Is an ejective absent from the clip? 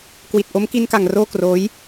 yes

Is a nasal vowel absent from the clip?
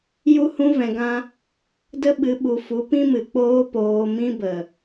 no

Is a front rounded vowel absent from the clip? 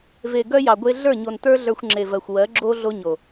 no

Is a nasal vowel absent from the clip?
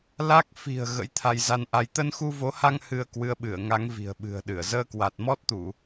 yes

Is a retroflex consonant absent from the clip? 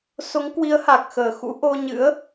yes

